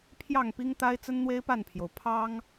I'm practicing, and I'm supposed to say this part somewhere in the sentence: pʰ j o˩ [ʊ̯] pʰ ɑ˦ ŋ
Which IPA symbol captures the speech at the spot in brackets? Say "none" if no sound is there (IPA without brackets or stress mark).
ʊ̯